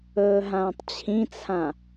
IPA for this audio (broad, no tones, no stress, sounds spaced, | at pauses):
ɵː ɦ ãː tˤ t͡ɕʰ ĩ t͡sʰ ã